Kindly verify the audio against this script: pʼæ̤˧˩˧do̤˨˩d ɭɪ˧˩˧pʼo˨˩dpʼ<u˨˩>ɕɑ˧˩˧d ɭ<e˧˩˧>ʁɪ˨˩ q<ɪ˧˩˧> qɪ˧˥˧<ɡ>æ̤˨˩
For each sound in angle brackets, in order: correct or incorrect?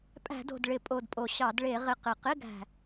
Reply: incorrect, correct, incorrect, correct

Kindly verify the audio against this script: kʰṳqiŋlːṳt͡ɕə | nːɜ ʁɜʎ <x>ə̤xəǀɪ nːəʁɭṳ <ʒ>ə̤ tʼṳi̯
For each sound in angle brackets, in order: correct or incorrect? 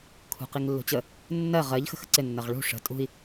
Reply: correct, incorrect

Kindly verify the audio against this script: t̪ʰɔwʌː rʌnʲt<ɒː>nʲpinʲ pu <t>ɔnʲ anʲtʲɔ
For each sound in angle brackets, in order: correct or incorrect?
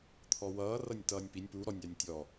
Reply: incorrect, incorrect

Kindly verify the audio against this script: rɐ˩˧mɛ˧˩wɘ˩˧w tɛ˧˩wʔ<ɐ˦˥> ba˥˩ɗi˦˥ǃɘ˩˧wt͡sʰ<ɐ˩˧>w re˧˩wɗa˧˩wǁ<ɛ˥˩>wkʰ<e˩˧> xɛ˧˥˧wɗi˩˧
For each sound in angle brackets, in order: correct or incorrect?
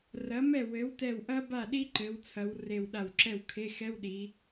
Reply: correct, correct, correct, incorrect

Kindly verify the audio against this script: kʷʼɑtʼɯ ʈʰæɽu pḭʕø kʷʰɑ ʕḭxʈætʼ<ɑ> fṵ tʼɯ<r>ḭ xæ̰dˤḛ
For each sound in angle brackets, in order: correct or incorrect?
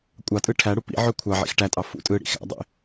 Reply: correct, incorrect

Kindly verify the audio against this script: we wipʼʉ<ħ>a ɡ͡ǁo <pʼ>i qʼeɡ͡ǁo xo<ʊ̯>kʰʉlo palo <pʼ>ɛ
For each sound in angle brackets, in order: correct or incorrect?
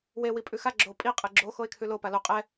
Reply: incorrect, correct, incorrect, incorrect

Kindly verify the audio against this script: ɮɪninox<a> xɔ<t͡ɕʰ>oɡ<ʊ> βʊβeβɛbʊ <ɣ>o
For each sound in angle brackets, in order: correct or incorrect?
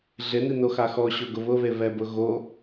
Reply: correct, incorrect, correct, correct

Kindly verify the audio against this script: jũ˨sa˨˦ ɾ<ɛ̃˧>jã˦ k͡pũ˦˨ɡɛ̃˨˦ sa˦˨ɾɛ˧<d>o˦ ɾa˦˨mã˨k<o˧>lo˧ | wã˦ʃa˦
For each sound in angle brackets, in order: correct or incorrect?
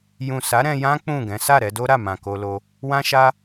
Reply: correct, correct, correct

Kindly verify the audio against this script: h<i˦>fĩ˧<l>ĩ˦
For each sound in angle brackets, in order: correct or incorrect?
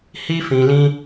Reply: correct, correct

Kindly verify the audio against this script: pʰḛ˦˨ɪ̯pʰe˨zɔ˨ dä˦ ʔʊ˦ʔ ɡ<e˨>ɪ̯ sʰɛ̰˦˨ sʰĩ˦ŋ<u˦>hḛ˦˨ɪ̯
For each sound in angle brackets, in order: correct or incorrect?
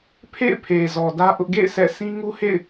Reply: incorrect, correct

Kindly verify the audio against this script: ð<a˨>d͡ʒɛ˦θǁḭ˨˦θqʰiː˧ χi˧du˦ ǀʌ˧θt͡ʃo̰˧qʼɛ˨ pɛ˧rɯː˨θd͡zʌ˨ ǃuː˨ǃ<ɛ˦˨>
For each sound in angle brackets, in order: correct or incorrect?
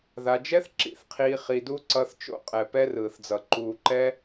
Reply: incorrect, incorrect

